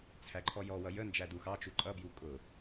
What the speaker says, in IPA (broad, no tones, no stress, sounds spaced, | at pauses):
t͡sʰ æ ǃʰ ɔ j ɔ w ʌ j ə n d͡ʒ æ d u x ɑ t͡ʃ u ǃʼ ʌ b j u kʼ ʊ